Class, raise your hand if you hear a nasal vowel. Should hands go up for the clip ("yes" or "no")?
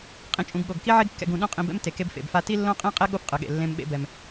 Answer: yes